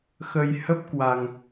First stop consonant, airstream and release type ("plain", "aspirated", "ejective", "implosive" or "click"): plain